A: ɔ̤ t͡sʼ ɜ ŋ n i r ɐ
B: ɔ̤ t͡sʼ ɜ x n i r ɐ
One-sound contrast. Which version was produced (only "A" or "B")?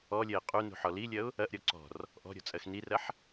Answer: B